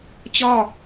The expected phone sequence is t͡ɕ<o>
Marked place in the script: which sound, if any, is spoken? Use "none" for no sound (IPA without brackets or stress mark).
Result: ɔ